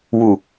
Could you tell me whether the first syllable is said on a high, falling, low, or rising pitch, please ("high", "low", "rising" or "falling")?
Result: low